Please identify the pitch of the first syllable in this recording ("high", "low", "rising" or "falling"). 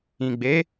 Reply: low